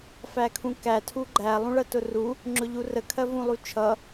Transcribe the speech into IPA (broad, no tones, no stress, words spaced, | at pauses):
fækʰũkæ tʰuɡ͡ǃæ lˠũɭɜtʊru | ŋ͡ǁʊʎurə kʰɜvũlˠut͡ʃʰʌ